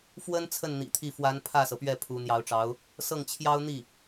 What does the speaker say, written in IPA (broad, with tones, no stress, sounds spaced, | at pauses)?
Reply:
f w ə˥ n t͡sʰ ə˥˩ n n̪ ḭ˨˩ t̪ʰ i˥˩ f w a˧˥ n pʰ ä˥˩ s ɤ˩ p ɥ ɛ˥˩ pʰ u˧˥ n̪ j ɑ˧˥ ʊ̯ ʈ͡ʂ ɑ˧˥ ʊ̯ | s ɤ˥˩ ŋ t͡ɕʰ j ɑ˥ ʊ̯ n̪ i˥˩